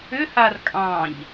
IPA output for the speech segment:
ʏhar kʼɑ̃ʎ

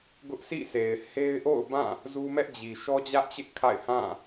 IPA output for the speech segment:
ɡʊ˦ʔsʰḭ˦˨se˨ɪ̯ he˦ɪ̯ʔo̰˦˨ʊ̯bã˦˨ | zu˦mɛ˦ʔd͡ʑi˨ ʃɔ˦d͡ʑä˦ʔt͡ɕɪ˦ʔ kʰa̰˦˨ɪ̯hã˦˨

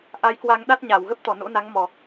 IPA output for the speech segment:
ʔa˨˦jkwa˧ŋ ɗa˦˥t̚ɲa˧˩wɣə˦˥p̚t̪ɔ˧˩ no̰˧˥na˨˦ŋmɔ˨˩

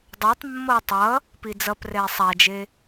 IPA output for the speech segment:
dˤɛtˤ mːʌːtˤʌ | pid͡zʌp rɛːsˤad͡ʒe

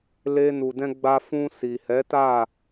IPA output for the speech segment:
le˧nu˨ dɛ̃˧ɡ͡ba˧ fũ˧ si˨hɛ˨˦ta˦˨

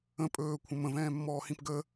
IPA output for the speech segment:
ə̃ pʼɵːkʷʰə̃ mə̃vɛ̃ːmːɔːhĩp ɡə

